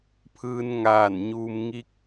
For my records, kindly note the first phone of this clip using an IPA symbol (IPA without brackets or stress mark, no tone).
pʰ